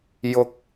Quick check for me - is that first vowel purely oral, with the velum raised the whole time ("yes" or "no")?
yes